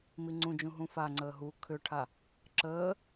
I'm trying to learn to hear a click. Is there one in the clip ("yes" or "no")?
yes